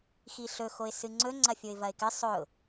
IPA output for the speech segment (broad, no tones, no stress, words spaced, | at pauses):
xiɬɵxoɪ̯ sɨŋ͡ǀɵ ŋ͡ǀɐfʲoɪ̯vɐɪ̯kɨ sˤɵʊ̯